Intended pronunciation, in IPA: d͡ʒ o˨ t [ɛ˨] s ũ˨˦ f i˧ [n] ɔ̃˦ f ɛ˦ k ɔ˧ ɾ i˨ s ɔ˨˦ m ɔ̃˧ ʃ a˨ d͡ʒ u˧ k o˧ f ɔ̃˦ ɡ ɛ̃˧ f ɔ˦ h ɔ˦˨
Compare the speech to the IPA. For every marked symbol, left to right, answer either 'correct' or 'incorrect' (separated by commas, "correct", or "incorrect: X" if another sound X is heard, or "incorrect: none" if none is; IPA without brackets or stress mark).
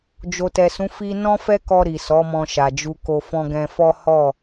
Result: correct, correct